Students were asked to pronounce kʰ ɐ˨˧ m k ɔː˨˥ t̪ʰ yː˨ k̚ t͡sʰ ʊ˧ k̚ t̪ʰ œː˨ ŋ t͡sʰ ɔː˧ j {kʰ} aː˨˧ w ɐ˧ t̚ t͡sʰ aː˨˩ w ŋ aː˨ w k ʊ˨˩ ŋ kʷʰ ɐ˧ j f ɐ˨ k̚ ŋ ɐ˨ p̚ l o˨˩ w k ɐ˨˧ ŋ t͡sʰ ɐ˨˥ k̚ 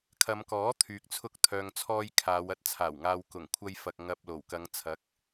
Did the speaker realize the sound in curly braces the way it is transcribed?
yes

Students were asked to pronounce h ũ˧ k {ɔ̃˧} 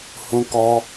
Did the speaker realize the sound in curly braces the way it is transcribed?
no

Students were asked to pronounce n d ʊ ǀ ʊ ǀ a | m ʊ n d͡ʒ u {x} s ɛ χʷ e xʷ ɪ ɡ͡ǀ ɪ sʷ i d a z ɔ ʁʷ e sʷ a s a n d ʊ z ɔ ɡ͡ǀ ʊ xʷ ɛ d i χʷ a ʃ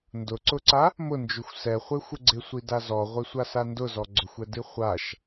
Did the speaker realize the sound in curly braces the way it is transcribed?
no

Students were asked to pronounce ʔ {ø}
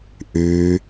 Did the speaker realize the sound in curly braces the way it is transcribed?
no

